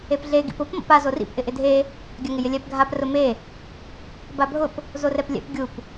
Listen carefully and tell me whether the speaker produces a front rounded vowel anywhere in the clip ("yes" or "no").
no